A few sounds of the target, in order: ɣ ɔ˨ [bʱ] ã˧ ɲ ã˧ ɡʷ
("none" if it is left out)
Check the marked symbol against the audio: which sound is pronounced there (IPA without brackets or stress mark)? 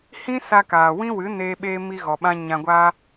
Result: ɓ